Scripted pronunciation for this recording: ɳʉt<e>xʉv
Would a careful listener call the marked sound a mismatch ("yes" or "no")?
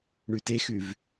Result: no